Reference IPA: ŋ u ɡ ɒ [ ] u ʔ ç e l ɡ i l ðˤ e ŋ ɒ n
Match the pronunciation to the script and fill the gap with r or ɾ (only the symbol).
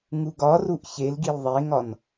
r